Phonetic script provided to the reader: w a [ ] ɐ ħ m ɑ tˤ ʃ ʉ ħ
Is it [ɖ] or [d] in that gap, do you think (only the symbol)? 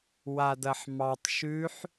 d